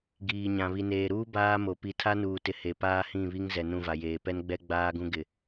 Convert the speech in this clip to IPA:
ɡ iː˨ ɲ ã˨ β i˨ n eː˨ ɾ uː˦ b aː˦ m o˨ p i˨ tʰ a˦ n uː˨ t ɪ˨ h e˨ p aː˦ h ĩ˦˨ β i˦ ŋ z ɛ˨ n ũ˦˨ v a˨ j eː˨ p ɛ˦ n ɡ͡b ɛ˦ ɡ͡b aː˦ ɡ ũ˦ ɡ ɪ˨

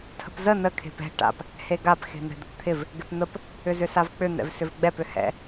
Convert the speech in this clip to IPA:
tʰ ə̤ p z ə n ə kʰ e̤ p ɛ̤ ʈ a̰ p | h e ɡ a p x e̤ n̪ ɛ̤ d̪ ə̤ p t̪ʰ ɪ v | ɡ ɪ p n̪ ə p | ʏ z ʏ s a v k͡p ʏ n̪ ɛ̰ v s ʏ v ɡ͡b ɛ p ʏ h ɛ̰

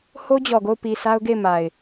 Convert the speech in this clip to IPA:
h o˦ d͡ʑ ɔ˨ ɡ o˦˨ ʊ̯ p i˨ s a˦ ʊ̯ ɡ e˦˨ ɪ̯ m a˨ ɪ̯

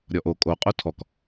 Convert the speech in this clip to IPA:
ɾʲ ɔ ʔ o kʼ o qʼ o tʰ ɔ k

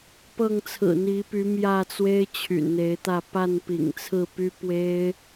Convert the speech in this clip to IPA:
p ɤ˥˨ ŋ t͡sʰ ɹ̩˨˩ n̪ i˨˦ p y˨˦ m j ä˥˨ t͡s w e˦ ɪ̯ t͡ɕʰ y̰˨˩ n n̪ e˨˦ ɪ̯ t̪ ä˥˨ p a˥˨ n p ḭ˨˩ ŋ t͡sʰ ɹ̩˥˨ p y˦ p w e˦ ɪ̯

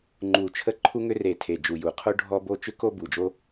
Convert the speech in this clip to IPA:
ŋ͡ǃ u˨˩ t͡ʃʰ ə˥ ǃʰ u˥ ŋ ʏ˥ r e˨˩ tʰ e˨˩ d͡ʒ u˨˩ j u˨˩ qʰ o˥ ɖʱ ɔ˥ b o˥ t͡ʃ ʏ˥ k o˥ b u˨˩ d͡ʒ o˥

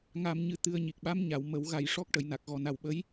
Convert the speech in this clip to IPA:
ŋ a˧ m ɲ ɨ˧ t̪ ɨ˧ ə̯ ɲ i˨˩ k̚ ɓ a˧˥ m ɲ a˨˩˨ w m ə˨˩˦ w ɣ a˨˩ j ʂ ɔ˦˥ k̚ ʈ ə˨˩˨ j n a˨˩ k̚ ɣ ɔ˨˩ n a˨˩ w ɓ ə˧˥ j

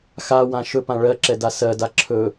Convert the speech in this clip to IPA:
x a w ã ʃ ɵ p ã ɭ ɜ ǁ ɛ d a s ɜ d a ǁʰ ɵ

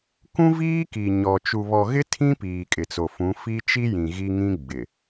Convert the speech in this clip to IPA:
k ũ˦ v iː˦ k i˨ ɲ ɔ˨ t͡ʃ u˨ β ɔ˨ ɣ ɪ˦ tʰ ĩ˦ p iː˨ kʼ ɪ˨ t͡s o˨ f ũ˨˦ f i˦ t͡ʃ i˦ j ĩ˨ ɣ i˦ ŋ ĩ˦ ɡ͡b ɪ˨

